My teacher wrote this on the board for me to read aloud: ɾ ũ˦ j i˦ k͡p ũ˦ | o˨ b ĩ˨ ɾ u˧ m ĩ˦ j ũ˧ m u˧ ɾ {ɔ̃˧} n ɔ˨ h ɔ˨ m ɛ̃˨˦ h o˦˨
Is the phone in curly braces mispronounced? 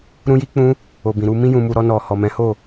yes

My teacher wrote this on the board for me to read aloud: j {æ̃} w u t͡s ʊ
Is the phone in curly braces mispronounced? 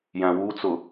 no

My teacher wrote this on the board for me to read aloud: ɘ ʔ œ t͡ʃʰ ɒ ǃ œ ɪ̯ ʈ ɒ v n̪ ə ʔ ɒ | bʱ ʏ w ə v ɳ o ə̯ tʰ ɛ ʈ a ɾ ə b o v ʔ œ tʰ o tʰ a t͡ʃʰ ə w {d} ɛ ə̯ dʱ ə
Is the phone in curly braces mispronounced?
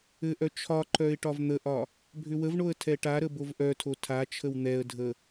yes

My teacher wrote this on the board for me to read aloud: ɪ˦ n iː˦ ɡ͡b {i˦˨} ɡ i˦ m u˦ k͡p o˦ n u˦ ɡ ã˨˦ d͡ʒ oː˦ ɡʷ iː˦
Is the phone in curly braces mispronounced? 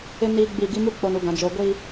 no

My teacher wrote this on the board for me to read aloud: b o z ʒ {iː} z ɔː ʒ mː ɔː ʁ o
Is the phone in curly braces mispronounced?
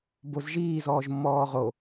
no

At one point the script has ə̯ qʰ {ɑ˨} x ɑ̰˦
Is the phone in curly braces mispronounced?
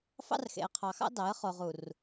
no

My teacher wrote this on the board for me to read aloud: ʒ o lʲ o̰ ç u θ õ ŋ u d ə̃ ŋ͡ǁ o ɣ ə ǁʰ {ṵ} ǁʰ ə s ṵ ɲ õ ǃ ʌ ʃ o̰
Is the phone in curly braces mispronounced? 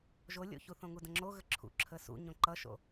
no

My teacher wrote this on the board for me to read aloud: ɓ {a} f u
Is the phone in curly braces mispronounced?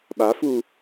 no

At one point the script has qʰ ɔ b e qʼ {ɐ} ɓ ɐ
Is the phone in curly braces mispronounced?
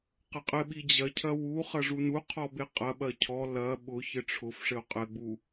no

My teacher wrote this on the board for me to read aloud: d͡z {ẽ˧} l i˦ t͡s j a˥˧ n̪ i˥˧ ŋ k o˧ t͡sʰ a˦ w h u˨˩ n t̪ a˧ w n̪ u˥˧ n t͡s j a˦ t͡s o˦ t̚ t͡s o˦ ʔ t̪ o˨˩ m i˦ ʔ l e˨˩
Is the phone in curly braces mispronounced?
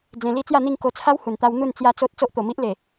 no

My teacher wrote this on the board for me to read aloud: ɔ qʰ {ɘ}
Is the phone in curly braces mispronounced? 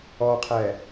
yes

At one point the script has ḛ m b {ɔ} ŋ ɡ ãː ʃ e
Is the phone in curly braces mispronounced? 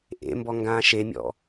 no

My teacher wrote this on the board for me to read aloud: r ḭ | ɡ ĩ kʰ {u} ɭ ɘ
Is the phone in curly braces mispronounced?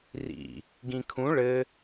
yes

